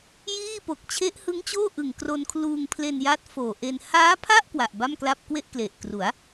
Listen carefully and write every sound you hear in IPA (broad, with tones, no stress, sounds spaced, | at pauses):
j iː˥˩ p o˨˩ k̚ t͡ɕʰ e˦˥ ʔ h ɯ˦˥ ŋ t͡ɕ oː˥˩ ʔ ɯ˨˩ ŋ k r o˧ n kʰ l uː˧ ŋ pʰ l e˧ n j a˦˥ t̚ f oː˨˩ ʔ e˧ n h aː˦˥ pʰ a˥˩ ʔ k w a˨˩ ʔ b a˥˩ m k l a˥˩ p̚ k w e˥˩ ʔ k l e˨˩ ʔ k r u˩˦ a̯